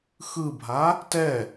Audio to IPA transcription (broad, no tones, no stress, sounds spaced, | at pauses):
x ɯ bʱ a | t ɛ